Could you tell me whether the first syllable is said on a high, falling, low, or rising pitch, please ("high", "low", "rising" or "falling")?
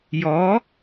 rising